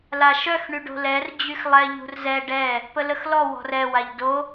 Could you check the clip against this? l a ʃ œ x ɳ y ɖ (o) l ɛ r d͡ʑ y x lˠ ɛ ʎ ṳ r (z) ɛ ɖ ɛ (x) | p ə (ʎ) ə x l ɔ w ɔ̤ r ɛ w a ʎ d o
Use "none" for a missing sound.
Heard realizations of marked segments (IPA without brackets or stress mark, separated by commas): o̤, z, none, l